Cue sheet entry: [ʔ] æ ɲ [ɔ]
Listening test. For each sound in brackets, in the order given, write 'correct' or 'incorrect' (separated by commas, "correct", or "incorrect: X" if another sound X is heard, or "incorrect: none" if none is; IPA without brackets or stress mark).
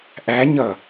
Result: correct, incorrect: ʌ